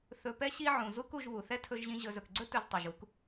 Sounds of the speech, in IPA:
θ ɵ˨ p ɛ˧ ɕ i˧ ʕ ũ˨ z u˧ k u˨ ʒ β u˨ θ ɛ˦ tʰ ɵ˧ ʒ ʑ ĩ˧ ʑ ɵ˨ z ɵ˨ k ɡ͡ǀ ɵ˧ t ɵ˧ z tˤ e˨ ʒ u˧ k

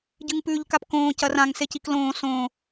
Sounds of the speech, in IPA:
ɟ ɨ ŋ p ʉː ʎ k a p k õː c ɐ r ã ŋ s e c i k l õː s õː

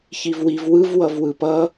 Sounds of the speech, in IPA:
ç i v w i v w ɯ v w ʌ v w ɯ p ʌ

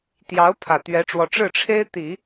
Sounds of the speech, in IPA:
t̪ j ɑ˧˥ ʊ̯ pʰ ä˨˩ t̪ ɥ ɛ˧˥ ʈ͡ʂ w ɔ˧˥ ʈ͡ʂ ɻ̩˥˩ ʈ͡ʂʰ e˥ ɪ̯ t̪ i˨˩˦

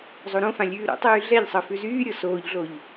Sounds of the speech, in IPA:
zˤ o ɾ õ f ã lʲ ʉː ɾ o̰ tˤ yː ɮ ɛ ʎ sˤ ɤ f ʉ z yː ɾʲ ɤ s oː ʎ ɮ o ʎ

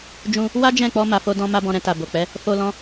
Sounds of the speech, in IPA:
d͡ʒ ũ˧ | w a˦ d͡ʒ ɛ̃˦˨ k͡p ɔ˧ m a˨ f o˧ d ɔ̃˧ m a˦ b ɔ̃˧ ɾ ɛ̃˧ t a˨ b o˨ k͡p ɛ˨˦ | f o˧ l ɔ̃˧

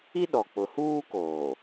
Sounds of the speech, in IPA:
i˦ ɗ ɔ˨ k͡p ʊ˨ h uː˦ k oː˨

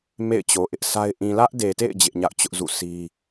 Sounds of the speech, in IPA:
m ḛ˦˨ ɪ̯ t͡ɕ o˨ ʔ ɪ˦ ʔ s a˦ ɪ̯ ʔ ĩ˨ l ä˦ ʔ d e˨ t ḛ˦˨ ɪ̯ d͡ʑ ɪ˦ ʔ ɲ a̰˦˨ ʊ̯ t͡ɕ ʊ˦ ʔ z ṵ˦˨ sʰ i˦

